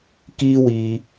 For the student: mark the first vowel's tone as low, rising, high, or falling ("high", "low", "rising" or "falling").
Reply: high